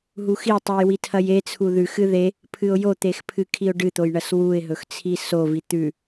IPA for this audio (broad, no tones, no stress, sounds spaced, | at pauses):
ɦ u x i tˤ ʉ j w i tʰ ɐ j e t͡sʰ u ð ʉ x ɨ ð e | pʰ ɨ ʊ̯ j o t̪ e x pʰ ɨ kʰ i ʊ̯ ɖ ɨ t̪ o j ɳ ɐ s w u ɪ̯ ɦ ɵ x t͡sʰ i s o v i t̪ ʉ